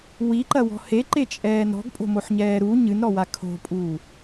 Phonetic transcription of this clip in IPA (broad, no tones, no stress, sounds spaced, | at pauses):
w i ǃ ɐ w ɔ̤ h e ǃ e t͡ʃʼ ɛː n ɾ ɔ̤ ɡ pʼ o̤ m o ħ ɲ ɛː ɾ u ɲ ɨ n ɾ ɔ w a kʰ o̤ pʼ uː